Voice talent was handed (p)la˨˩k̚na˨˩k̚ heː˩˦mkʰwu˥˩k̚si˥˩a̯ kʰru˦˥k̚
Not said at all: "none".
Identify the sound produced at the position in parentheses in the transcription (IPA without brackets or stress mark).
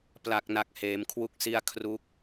p